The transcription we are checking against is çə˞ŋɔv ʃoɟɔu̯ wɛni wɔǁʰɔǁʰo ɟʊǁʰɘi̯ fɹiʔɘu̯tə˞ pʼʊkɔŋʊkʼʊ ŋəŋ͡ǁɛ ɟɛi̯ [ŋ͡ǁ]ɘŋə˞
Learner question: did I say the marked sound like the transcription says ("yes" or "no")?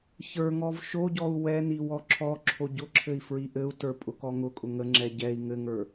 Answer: no